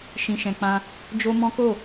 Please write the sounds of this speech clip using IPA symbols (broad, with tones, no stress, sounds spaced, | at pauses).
ʃ ĩ˨ ʃ ɛ̃˨ k͡p ã˧ | d͡ʒ o˦ m ɔ̃˦ k o˦˨